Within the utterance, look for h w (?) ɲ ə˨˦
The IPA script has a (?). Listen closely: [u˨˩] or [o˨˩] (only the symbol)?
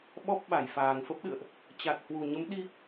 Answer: u˨˩